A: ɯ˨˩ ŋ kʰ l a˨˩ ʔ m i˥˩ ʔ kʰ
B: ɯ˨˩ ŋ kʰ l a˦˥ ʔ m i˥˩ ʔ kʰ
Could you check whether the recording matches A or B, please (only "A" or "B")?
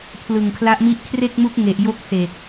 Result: B